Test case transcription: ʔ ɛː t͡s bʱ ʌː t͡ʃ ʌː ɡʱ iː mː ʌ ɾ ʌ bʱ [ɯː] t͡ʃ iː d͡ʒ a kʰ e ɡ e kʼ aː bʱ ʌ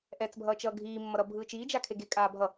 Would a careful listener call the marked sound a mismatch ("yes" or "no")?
no